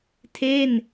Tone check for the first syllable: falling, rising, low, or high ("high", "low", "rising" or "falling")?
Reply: falling